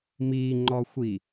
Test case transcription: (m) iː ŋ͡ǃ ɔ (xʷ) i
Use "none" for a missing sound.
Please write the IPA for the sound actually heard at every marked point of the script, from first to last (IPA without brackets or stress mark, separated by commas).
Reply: m, xʷ